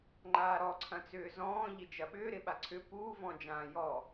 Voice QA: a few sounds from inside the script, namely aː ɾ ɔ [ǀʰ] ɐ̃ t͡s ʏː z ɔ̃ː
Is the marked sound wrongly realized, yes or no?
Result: no